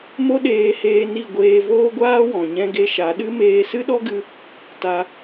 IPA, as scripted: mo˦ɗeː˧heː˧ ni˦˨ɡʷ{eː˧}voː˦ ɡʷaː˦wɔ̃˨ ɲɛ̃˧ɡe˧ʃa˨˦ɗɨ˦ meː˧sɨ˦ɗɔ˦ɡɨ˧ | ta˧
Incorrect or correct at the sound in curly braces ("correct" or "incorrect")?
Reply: correct